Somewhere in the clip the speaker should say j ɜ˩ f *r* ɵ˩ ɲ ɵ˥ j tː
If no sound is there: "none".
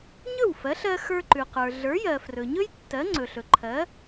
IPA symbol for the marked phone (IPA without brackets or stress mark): r